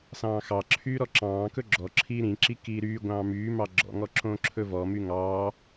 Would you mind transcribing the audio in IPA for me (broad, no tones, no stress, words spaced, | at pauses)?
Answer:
sɑ̃ːxɑǁʰyː ɾɔǁɑ̃ːkɵ ɡ͡ǁɔ ǁʰiːɾĩǁi kiːɾyːɡʷɑ̃ː myːmɑ ɡ͡ǁɔ̰ŋɔ ǁõːǁʰɵvɔmy ŋɑː